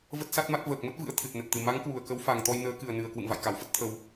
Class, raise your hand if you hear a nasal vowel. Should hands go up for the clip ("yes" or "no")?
no